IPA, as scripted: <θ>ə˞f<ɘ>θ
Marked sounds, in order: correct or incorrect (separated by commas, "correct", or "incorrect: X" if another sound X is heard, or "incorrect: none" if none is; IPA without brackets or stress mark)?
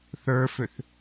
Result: correct, incorrect: ø